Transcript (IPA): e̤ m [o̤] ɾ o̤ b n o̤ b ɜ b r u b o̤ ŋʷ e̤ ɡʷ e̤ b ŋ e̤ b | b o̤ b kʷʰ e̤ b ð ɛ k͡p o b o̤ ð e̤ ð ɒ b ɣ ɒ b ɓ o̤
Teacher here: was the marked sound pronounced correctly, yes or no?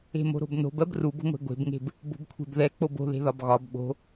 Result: yes